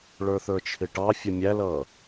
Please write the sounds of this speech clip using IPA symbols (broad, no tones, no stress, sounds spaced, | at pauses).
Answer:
ɭ ə˞ θ ə˞ t͡ʃʰ ɪ ʈ ɑ fʲ ə mʲ æ l ʌː